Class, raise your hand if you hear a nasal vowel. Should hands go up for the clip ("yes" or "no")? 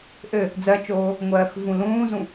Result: yes